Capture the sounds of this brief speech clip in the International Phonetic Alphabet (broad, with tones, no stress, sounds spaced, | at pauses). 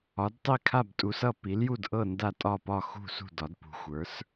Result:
ɒ˩˥ d tˤ i˥˩ kʰ a˥˩ b tʼ u˩˥ s ʌ˥˩ p i˩˥ l j u˥˩ d ʔ ɤ˥˩ n d a˥˩ tʼ ɒ˥˩ p ɒ˥˩ x ṳ˥˩ s ṳ˥˩ d ɒ˩˥ d p ṳ˩˥ xʷ ə˞˩˥ s